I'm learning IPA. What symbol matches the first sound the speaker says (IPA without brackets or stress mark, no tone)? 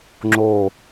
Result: ŋ͡ǁ